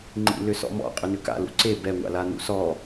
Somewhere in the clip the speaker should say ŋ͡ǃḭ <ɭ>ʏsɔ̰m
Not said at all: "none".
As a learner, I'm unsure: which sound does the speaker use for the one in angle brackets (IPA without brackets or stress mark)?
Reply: l